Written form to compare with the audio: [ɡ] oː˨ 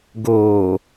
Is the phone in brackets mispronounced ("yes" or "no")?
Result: no